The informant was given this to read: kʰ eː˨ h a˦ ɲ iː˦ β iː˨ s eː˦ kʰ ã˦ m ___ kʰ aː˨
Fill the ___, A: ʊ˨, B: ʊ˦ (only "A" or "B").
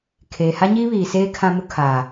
B